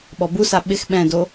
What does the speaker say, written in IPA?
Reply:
ɓ ɔ b u s a ɓ ɪ x ɓ ɛ̃ d o

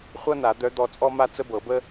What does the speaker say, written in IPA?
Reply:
χʷ ɤ˥ n a˨˩˦ d̪ œ˧˥ d̪ ɔ˦˨ t͡sʼ ɔ˥ m a˥ t͡s ə˥ b ɤ˨˩˦ b ə˥

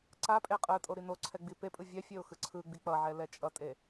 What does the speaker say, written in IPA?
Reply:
ǀ a pʼ e qʼ ɯ tʼ o ɾ i n o ǀʰ ɛ ɡ͡b i p e pʼ ɯ vʲ ɛ fʲ e ʊ̯ x ɯ ǀʰ ɯ ɡ͡b i k͡p ʌ ʕ ɛ l ɛ t͡ʃʼ ʌ tʼ e

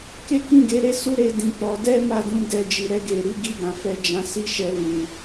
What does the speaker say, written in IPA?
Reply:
k e˦ k ĩ˦˨ ɡ e˨˦ ɾ e˦ s u˦ ɾ e˧ d ĩ˨ k͡p ɔ˨˦ d ɛ˦ m a˦˨ d ũ˧ d ɛ˧ d͡ʒ i˨ ɾ ɛ˧ ɡ e˨ ɾ i˨˦ ɡ i˦˨ ɡ ã˨ f ɛ˧ d͡ʒ ã˧ s i˦ ʃ ɛ˧ l ũ˨

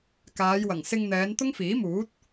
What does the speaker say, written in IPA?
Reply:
k aː˨˧ j w ɐ˨˩ ŋ s ɪ˧ ŋ n̪ ɛː˨˧ n t̪ ʊ˥ ŋ f iː˨˥ m uː˨˥ t̚

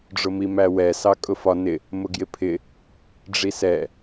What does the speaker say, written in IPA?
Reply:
ɖ͡ʐ ʊ m i m æ w ɛ s ɑ kʼ ʊ f ɒ n ɪ | m ʊ ɡ j ɪ pʰ ɪ | ɖ͡ʐ i s ɛ

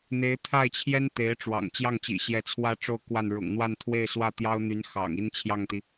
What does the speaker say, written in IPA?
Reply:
n̪ e˧˥ ɪ̯ t̪ʰ a˥˩ ɪ̯ t͡ɕʰ j ɛ˥ n t̪ e˧˥ ɪ̯ ʈ͡ʂ w ɑ̰˨˩ ŋ t͡ɕ j ɑ˥˩ ŋ t͡ɕ ḭ˨˩ ɕ j ɛ˧˥ t͡sʰ w ä˥˧ ʈ͡ʂ o˥˧ ʊ̯ k w a˥˩ n ɻ ʊ̰˨˩ ŋ n̪ w a˥˧ n t̪ʰ w e˥˧ ɪ̯ s w ä˥˩ t̪ j ɑ˥ ʊ̯ n̪ y˧˥ n x ɑ̰˨˩ ŋ i˥ n t͡ɕʰ j ɑ˥˩ ŋ t̪ i˩

